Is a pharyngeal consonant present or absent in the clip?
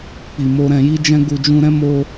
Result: absent